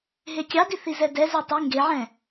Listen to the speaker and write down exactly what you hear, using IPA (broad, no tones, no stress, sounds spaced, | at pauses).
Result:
ɦ e kʲ ɑ d i θ i z ɛ d ɛ z œ tˤ y ŋ ɡ e ʕ ɛ̃